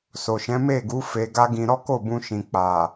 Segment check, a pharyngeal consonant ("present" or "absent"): absent